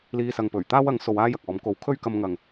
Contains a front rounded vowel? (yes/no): no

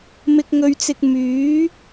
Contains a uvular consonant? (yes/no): no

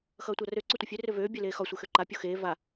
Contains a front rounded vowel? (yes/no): yes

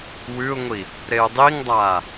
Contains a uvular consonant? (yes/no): no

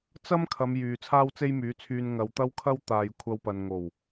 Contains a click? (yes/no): no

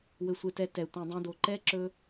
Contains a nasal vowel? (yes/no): yes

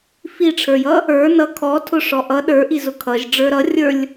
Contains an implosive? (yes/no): yes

